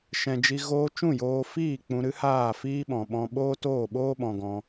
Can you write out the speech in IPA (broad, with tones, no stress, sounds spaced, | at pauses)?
ʃ ɛ̃˨ d͡ʒ i˧ ɣ oː˦ t͡ʃ ũ˦˨ j oː˧ f iː˦˨ k͡p ũ˧ ɾ ɨ˦ h aː˦˨ f iː˦ ɓ ɔ̃˨ ɓ ɔ̃˧ ɓ oː˦ t oː˦˨ ɓ oː˦ ɓ ɔ̃˧ ɡ ɔ̃˧